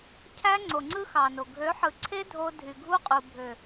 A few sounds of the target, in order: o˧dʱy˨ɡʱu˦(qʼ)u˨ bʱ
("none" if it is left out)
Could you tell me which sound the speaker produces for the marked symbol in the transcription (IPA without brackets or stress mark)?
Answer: qʼ